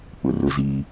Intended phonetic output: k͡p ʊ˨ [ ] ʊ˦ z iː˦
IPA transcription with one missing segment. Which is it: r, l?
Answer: r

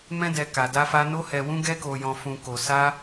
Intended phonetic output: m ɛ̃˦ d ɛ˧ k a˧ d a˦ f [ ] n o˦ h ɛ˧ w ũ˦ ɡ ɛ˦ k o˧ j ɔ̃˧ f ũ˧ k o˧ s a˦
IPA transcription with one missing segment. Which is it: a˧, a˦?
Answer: a˦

